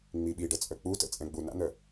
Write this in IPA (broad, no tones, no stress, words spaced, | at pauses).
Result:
ŋ͡miɓiɖə t͡sʼœk͡putə̰ t͡sʼɛ̃ɡ͡buna̰n̪œ